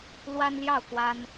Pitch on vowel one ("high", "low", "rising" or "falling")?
high